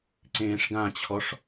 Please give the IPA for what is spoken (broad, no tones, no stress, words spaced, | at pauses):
ǀẽːʂɡãt͡ɕʰɔʂ